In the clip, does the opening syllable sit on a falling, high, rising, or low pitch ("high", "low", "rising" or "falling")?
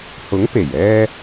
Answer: rising